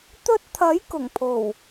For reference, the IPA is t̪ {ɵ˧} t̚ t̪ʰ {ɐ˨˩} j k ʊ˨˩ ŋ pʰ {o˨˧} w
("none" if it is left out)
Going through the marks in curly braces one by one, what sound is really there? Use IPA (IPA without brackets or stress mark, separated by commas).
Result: ɵ˧, ɐ˨˥, o˨˩